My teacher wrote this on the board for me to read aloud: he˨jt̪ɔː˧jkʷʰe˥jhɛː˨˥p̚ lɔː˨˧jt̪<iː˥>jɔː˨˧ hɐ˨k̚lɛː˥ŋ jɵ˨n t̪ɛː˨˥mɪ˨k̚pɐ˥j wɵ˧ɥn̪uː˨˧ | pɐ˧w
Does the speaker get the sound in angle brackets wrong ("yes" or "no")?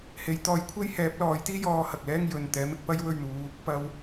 no